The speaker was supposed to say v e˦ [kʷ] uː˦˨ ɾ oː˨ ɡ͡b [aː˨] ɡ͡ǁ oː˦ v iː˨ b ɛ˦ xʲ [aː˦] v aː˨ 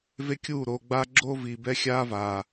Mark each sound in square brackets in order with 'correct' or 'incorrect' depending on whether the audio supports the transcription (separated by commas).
incorrect, incorrect, correct